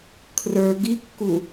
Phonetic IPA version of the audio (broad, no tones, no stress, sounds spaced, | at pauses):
kʰ r ə˞ ɡ i kː u